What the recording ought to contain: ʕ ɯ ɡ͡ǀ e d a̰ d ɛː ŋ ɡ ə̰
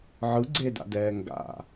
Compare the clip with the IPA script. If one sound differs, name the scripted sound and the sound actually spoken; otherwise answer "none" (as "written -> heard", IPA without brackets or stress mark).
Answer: ə̰ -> a̰